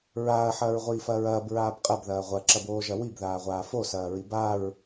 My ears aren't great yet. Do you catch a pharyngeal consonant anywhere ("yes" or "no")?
yes